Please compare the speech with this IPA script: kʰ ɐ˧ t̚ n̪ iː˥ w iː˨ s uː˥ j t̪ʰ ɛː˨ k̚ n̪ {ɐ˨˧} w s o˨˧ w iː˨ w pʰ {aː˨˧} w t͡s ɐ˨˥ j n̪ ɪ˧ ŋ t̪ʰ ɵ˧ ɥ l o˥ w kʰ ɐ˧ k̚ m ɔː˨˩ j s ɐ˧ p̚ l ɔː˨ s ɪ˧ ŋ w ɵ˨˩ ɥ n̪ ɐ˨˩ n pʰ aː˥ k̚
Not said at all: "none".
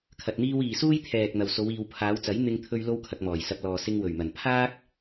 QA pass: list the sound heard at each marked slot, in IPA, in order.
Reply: ɐ˨, aː˨˧

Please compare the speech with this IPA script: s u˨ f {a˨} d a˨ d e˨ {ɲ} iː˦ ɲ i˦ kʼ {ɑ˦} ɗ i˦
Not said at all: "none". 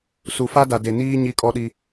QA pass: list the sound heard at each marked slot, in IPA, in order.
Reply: a˦, n, ɔ˦

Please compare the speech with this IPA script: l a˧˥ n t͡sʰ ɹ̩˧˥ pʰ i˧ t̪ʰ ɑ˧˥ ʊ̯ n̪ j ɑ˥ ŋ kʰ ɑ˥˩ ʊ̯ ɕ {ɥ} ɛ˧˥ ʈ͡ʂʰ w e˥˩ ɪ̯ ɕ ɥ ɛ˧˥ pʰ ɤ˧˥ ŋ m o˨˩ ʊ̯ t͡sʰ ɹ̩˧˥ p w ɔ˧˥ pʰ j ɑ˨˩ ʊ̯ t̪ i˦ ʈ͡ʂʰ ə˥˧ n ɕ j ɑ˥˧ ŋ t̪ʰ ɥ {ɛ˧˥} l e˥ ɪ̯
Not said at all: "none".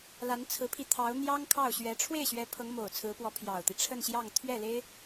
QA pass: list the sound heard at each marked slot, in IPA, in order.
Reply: ɥ, ɛ˥˩

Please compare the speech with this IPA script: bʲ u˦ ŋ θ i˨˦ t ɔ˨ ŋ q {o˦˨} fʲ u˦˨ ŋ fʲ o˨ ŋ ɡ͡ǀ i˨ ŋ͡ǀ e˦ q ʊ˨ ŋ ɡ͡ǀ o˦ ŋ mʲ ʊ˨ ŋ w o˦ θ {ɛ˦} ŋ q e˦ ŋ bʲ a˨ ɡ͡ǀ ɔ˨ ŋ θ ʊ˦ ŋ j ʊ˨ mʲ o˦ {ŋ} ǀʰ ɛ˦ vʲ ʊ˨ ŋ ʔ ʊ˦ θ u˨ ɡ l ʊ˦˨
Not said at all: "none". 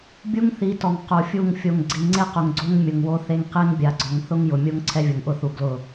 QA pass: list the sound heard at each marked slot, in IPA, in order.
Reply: o˨, e˦, ŋ

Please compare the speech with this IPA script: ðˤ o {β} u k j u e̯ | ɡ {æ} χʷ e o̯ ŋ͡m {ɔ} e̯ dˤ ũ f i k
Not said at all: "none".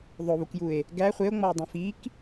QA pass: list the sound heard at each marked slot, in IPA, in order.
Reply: β, æ, ɔ

